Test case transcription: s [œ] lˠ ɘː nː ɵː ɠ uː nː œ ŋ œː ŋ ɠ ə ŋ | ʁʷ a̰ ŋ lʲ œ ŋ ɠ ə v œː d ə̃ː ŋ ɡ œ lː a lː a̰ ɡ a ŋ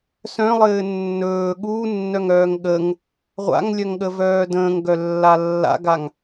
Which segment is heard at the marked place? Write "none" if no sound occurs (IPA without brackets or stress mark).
œ̃